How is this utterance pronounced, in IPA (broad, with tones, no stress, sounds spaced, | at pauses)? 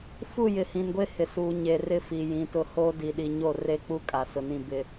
f u˦˨ j ɪ˨ h ĩ˨ n ɡʷ e˦ h ɪ˨ s uː˨ ɲ e˨ r ɪ˦ f i˨ j ĩ˨˦ t ʊ˦ h oː˦ d i˨ ɗ i˨ ɲ o˦˨ r e˦ k͡p u˦ kʼ a˨ s ʊ˨ n ĩ˦˨ b ɪ˦